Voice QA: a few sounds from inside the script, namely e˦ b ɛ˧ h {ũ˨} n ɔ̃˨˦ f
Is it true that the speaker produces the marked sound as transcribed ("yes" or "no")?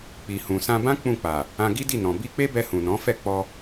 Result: yes